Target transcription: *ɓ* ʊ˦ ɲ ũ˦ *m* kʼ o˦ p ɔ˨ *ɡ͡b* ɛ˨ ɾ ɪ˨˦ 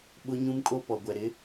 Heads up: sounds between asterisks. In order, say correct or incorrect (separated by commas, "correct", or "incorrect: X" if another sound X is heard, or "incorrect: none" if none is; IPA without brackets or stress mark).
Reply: correct, correct, incorrect: ɡʷ